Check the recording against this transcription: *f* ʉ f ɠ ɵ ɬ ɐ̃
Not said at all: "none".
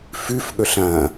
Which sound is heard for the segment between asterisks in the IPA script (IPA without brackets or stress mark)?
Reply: f